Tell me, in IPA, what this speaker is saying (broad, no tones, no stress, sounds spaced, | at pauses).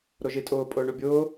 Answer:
ɾ o ʒ i tʼ ʊː pʼ ʊː ɳ u bʲ ʊː